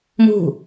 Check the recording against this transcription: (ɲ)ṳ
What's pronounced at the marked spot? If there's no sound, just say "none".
m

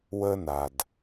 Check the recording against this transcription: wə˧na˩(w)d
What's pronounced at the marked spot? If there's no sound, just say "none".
none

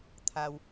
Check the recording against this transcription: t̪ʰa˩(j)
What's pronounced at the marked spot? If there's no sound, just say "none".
w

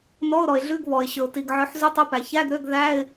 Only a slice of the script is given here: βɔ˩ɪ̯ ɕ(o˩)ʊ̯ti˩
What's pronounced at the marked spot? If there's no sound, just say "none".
ɵ˩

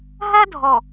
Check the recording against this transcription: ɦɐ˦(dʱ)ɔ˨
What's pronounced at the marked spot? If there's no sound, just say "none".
dʱ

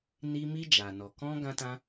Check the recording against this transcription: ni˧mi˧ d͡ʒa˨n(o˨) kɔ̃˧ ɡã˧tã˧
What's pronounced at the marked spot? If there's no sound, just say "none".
ɔ˨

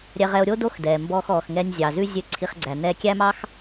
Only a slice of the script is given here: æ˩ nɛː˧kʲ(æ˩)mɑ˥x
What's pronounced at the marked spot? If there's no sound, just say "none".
æ˥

